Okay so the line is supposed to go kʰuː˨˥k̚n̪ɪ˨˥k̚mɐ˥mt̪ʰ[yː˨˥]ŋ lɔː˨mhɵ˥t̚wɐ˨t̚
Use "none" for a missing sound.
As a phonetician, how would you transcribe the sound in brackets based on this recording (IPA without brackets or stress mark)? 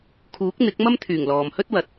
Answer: yː˨˩